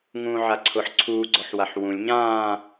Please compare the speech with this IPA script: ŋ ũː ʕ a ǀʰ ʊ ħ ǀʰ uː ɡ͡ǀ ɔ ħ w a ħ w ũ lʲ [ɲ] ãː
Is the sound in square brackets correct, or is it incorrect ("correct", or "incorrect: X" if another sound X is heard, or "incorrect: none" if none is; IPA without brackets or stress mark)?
correct